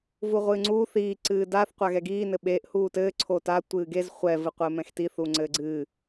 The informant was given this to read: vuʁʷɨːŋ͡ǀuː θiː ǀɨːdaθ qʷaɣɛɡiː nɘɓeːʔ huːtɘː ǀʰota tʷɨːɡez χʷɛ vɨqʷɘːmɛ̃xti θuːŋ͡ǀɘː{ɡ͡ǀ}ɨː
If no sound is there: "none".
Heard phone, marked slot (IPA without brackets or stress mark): ɡ͡ǀ